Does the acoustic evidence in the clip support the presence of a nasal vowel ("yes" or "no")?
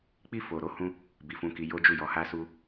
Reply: yes